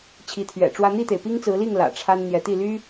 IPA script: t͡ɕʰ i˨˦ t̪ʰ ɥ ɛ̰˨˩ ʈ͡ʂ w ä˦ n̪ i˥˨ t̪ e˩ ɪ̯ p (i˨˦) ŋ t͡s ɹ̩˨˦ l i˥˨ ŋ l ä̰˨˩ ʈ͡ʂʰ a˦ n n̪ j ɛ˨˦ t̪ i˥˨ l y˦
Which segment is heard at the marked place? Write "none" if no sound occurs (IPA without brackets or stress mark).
i˦